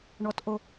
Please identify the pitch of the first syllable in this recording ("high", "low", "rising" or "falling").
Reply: rising